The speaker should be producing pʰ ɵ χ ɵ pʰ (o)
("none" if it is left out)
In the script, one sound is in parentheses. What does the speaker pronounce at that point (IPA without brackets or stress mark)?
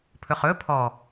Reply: ɔ